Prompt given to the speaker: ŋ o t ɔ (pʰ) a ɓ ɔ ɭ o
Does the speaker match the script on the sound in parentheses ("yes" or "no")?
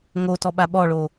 no